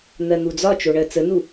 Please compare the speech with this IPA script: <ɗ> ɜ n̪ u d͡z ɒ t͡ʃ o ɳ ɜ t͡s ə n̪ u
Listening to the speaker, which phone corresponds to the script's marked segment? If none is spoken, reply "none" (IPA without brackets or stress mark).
n̪